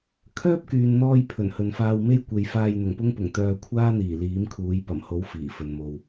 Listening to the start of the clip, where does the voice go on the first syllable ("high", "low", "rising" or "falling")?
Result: high